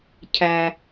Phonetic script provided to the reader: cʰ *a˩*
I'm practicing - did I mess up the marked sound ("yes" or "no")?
yes